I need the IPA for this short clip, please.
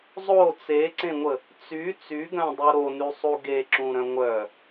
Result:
zˤ o t͡s e ǀ ẽ ŋʷ ə | t͡s y t͡s y ɡ œ̃ dˤ u ɾ o n y sˤ u ɡ e ǁ ũ ɾ œ̃ ŋʷ œ

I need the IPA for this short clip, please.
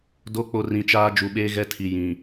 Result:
d o˨˦ k͡p o˨ r ĩ˨ t͡ʃ aː˦ d͡ʒ u˨ ɓ eː˦ ɣ ɛ˦ tʰ i˨ j ĩ˨

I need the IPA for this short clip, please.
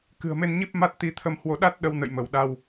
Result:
k ɨ̤˨˩ ə̯ m e˧ n ɲ i˦˥ p̚ m a˦˥ t̚ t̪ i˨˦ t̪ʰ ə˧ m h w o˧ ɗ a˦˥ t̚ ɗ ə˨˦ w n ə̰˧˨ j m ə˧˩ w ɗ a˧ w

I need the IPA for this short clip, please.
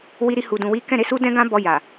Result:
w i˧ ɾ i˧ h u˨ d ũ˨ w i˨˦ k ɛ̃˦˨ ɾ e˨˦ s u˦ d ɛ̃˦ ɡ ã˦ b ɔ˧ j a˨

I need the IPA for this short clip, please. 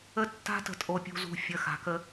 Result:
ə˦ tː a̤˦ t ə̤˨ tʼ o˨ pʲ ṳ˨ z ṳ˨ fʲ ə˨˦ x a̤˨ k ə˦

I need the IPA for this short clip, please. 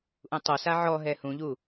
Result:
ʔ ũ tˤ o s a ʕ ɔ ɦ ɛ h ũ ʎ u

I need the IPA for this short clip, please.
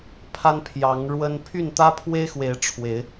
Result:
pʰ a˦ n pʰ j ɑ˨˦ ŋ ɻ w ə˦ n pʰ y˥˨ n t̪ ä˦ pʰ w e˦ ɪ̯ x w e˨˦ ɪ̯ ʈ͡ʂʰ w e˨˦ ɪ̯

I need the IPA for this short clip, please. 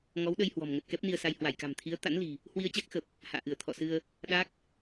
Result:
ŋ ɔ˨˦ w ɗ ə˧ j h w ɔ̤˨˩ m ŋ ə˨˩ t̚ k ɛ˦˥ p̚ n i˧ ə̯ s a˧ j h w a˧˩ j k a̤˨˩ m t̪ʰ i˨˦ ə̯ t̪ a̰˧˥ n l i̤˨˩ | h w i˧ ə̯ t͡ɕ a˦˥ k̚ x ə˨˩ p̚ | h a̰ː˧˨ ʔ ɨ˧˩ ə̯ t̪ʰ ɔ̰˧˨ s ɨ˧ ə̯ | ɗ a˦˥ k̚

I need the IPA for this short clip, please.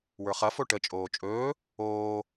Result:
w ə˞ χ ɐ f o ʈ ə t͡ʃʼ oː t͡ʃʼ ɵː | oː

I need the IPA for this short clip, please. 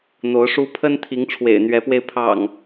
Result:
n̪ o˨˦ ʊ̯ ʂ u˦ pʰ ə˦ n t̪ʰ i˨˦ ŋ ʈ͡ʂʰ w ḛ˨˩ ɪ̯ n̪ ɥ ɛ˨˦ p w e˧ ɪ̯ pʰ ɑ̰˨˩ ŋ

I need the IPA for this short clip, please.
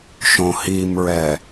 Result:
ʃ õ h i m ɹ ɛ

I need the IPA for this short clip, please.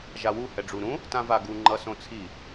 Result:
ʒ a w u h ɛ ɖ͡ʐ u ɾ ũ | t ã v a ɡ u ŋ͡ǃ ʌ s õ t͡sʰ i

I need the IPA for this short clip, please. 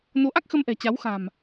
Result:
n o˨˦ ʔ a˦˥ k̚ x ə˧ m ʔ ɛ̤˨˩ t͡ɕ a˨˦ w x a̤˨˩ m

